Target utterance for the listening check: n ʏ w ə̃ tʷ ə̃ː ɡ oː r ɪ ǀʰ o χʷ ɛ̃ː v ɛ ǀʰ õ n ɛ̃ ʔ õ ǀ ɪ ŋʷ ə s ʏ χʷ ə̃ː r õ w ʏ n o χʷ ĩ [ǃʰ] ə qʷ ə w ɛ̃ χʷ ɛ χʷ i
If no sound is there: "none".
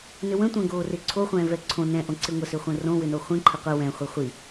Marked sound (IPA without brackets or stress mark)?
ǃʰ